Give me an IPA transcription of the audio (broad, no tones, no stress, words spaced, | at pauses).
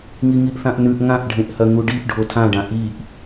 ŋiŋiʔθãʔnʉʔ ŋãʔɖʱẽʔhɐŋu ɖiʔ ɖʱotʰãɖã ʔiʔ